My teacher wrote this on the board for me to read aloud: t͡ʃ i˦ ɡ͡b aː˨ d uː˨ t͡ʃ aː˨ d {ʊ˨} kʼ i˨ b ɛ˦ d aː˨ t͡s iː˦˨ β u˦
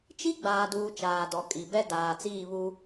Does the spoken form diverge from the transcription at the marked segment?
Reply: yes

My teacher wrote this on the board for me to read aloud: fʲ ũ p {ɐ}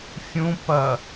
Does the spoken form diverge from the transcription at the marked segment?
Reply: no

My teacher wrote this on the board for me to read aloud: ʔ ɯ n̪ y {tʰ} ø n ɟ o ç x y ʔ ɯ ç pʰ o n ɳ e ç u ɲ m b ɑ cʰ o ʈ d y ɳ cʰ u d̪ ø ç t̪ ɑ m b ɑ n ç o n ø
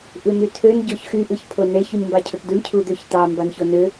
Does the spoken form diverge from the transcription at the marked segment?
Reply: no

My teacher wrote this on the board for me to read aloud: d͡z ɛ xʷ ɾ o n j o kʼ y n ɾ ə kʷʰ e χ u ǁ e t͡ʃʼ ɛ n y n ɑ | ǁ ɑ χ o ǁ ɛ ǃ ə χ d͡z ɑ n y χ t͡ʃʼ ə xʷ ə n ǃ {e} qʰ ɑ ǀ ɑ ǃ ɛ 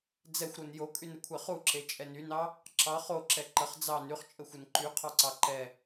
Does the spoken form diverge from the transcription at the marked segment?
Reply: yes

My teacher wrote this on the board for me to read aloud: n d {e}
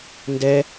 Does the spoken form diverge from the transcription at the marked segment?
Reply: yes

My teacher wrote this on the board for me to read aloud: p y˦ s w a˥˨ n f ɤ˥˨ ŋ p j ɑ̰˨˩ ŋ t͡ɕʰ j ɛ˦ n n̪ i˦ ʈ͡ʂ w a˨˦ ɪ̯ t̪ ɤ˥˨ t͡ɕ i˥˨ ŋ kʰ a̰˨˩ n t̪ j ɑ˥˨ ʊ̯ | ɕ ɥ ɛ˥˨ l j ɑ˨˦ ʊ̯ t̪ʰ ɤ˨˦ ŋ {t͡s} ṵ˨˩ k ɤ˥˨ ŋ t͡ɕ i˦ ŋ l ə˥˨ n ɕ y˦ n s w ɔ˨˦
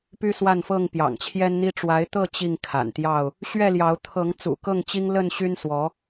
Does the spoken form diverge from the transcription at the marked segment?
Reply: no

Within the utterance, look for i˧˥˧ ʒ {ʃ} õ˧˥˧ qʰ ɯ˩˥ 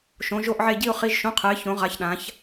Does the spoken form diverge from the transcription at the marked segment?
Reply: no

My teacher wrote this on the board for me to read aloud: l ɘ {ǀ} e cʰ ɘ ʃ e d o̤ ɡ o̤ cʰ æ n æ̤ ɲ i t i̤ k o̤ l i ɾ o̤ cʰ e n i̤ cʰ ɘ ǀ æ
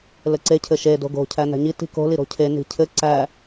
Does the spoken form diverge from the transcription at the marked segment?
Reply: no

